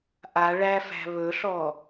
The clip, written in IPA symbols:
ʔa ɭæfæ̤ βɵɬɔ

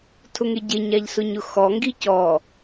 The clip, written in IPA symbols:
tʰʊŋeɟe ɲaʎsʊɲʊxɔ ŋɡicɔ

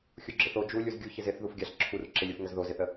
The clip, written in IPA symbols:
xʲuɡ͡ǁɪθo d͡ʒu lʲuzɡʲuçɪz ɪθ ðufɡʲaɬ ǁʰur ǁɪlʲuf ŋəzðozɪθə

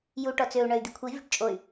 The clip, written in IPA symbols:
ju ʈɔt͡søu̯ ɳœy̯d̪ikʷʰi vʲo̤ʈt͡ʃʼoy̯

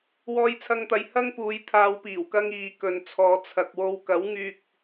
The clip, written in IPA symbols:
wɔː˧jt͡sʰɐ˧ŋt̪ɐ˨j hɐ˥ŋpuː˨˧j t̪ʰaː˧w piː˨˩wkɐ˧ŋ iː˨˧kɵ˨nt͡sʰɔː˨˧ t͡sʰɐ˨k̚wo˧w kɐ˨˥wŋyː˧k̚

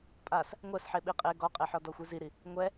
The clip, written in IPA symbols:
pʼas | ŋʷɛsħe ɓiqʼe ɡɔqʼeħɔ dɔxʷiziɾi | ŋʷɛ

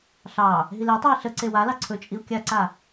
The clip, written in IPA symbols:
ɬɑ | ɦiletˤʉi̯ ɬə ǀewalɑ ǀʰɵt͡ʃʼiu̯ kʲaǀa

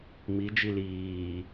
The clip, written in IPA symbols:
mi d͡ʒiliː

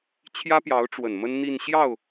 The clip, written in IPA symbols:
t͡ɕʰjä˥pjɑ˧˥ʊ̯ʈ͡ʂwə˨˩n mə˥nn̪i˥˧n ɕjɑ˥˩ʊ̯

